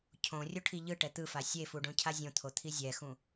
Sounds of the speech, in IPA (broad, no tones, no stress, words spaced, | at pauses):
cʰõ rʲoʈʰiʎɯʈɛ t̪ɯfa sʲefu ɖõcʰazʲõt̪ʰo t̪ʰizʲɛxũ